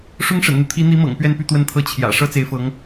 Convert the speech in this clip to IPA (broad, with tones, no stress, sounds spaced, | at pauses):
ʂ ʊ˥ ŋ ʂ ə̰˨˩ n n̪ u˦ t̪ʰ i˧˥ n̪ i˧˥ m ɤ̰˨˩ ŋ p ɥ ɛ˥˧ n p y˥˧ t̪ w ə˥˩ n t̪ʰ ɤ˥ t͡ɕʰ j ä̰˨˩ ʂ ɤ˥ t͡s e˧˥ ɪ̯ f ɤ˧˥ ŋ